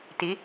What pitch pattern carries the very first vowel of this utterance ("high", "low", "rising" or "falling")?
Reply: rising